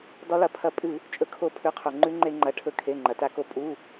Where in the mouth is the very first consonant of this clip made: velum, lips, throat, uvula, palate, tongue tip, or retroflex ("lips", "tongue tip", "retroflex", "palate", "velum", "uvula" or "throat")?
tongue tip